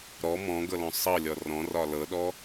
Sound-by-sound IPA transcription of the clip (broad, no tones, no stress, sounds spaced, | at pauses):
ɾ ɔ m ɔ̃ ɡ ɤ l ɔ̃ sˤ ɤ lʲ ɔ r ɔ̃ r ɒ l ɤ ɗ ɔ